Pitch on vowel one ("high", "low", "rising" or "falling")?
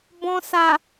low